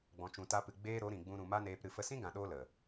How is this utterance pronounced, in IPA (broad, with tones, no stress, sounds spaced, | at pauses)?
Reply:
ɡ͡b ɔ̃˨ t͡ʃ ũ˨ t a˧ p ɨ˨ ɡ͡b eː˦ ɾ o˨˦ ɾ ĩ˨ ɡ͡b ũ˧ ɾ ũ˨ m a˦ n eː˧ p ɾ ɨ˧ f ə˧ s ĩ˦ ɡ ã˨ ɗ oː˧ l ə˨